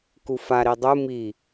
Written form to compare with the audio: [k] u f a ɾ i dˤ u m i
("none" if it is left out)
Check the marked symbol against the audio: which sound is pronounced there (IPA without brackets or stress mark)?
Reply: k